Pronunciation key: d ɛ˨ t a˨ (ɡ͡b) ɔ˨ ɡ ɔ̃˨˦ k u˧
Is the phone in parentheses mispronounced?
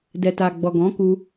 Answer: no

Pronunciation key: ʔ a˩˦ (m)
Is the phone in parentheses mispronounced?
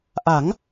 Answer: yes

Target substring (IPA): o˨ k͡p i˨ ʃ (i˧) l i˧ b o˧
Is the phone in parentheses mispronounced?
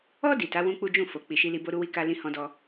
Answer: no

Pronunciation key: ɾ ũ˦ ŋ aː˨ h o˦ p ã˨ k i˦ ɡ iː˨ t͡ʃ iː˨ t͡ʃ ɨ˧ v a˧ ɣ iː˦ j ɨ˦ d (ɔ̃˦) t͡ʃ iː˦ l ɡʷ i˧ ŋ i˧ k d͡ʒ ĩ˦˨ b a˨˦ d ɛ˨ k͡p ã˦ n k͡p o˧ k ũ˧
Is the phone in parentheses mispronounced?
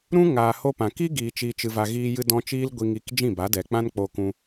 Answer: no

